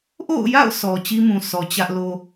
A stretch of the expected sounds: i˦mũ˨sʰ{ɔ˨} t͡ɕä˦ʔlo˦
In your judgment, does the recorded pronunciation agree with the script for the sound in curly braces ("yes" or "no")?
yes